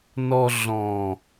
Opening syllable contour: low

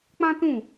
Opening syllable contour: high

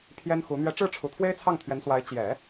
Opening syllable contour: high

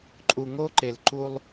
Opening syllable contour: low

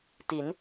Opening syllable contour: rising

